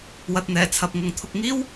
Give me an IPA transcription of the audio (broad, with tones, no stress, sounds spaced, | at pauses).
w ɐ˨ t̚ n̪ ɛː˨˩ t͡sʰ ɐ˨ p̚ ŋ ʊ˨ ŋ t̪ʰ ʊ˨ k̚ ŋ iː˥ w